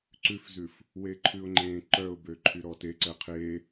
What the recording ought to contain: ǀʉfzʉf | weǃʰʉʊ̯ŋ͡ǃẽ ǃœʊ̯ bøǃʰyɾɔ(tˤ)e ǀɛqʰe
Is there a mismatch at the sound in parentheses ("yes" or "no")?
yes